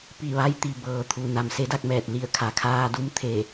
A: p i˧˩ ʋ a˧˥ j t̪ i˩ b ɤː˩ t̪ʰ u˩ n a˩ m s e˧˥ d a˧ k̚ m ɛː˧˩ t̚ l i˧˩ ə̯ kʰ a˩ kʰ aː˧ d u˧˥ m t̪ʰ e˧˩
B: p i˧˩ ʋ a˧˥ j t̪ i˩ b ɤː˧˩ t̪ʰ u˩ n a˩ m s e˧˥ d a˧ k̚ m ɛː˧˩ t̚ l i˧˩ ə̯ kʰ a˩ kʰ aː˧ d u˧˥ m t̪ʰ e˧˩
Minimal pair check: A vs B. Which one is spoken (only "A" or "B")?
A